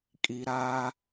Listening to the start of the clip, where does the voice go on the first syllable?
low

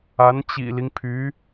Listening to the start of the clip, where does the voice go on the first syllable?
rising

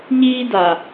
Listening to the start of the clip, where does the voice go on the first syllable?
high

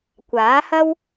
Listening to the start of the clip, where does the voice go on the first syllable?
rising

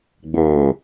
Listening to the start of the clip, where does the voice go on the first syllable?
low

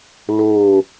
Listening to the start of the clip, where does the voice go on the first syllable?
falling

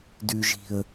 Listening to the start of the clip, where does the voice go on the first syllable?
low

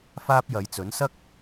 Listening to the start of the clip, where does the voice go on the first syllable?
high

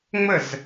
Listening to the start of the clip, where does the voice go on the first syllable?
falling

